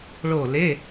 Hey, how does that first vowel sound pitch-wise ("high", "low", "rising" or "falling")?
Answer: falling